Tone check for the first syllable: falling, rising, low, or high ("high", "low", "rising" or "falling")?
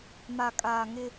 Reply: low